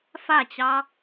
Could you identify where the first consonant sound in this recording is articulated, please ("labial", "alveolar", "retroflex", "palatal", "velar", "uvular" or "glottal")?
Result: labial